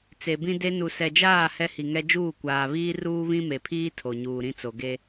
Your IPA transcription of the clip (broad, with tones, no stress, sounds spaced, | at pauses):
t͡s e˨ b ĩ˦ d e˦ n u˨ s ɛ˨ d͡ʒ aː˦˨ h ɛ˦ h i˨ ŋ ɛ˦ d͡ʒ uː˦˨ kʷ aː˨ β iː˦ r uː˦ β ĩ˦ m e˨ pʰ iː˦ tʰ o˨ ɲ uː˨ ɾ ĩ˦ t͡s o˨ ɡ e˦